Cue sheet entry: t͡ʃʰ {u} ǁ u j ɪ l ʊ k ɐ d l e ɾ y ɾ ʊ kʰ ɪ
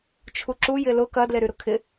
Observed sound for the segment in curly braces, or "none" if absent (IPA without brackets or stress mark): u